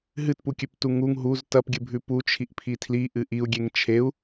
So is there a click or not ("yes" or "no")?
no